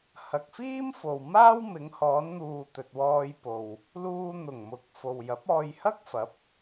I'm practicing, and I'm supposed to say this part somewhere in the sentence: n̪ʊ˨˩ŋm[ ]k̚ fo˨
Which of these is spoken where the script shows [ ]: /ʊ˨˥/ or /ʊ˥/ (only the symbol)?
ʊ˨˥